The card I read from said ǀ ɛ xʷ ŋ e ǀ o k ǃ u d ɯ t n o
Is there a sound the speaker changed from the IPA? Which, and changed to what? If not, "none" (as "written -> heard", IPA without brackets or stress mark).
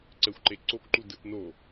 ŋ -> ǃ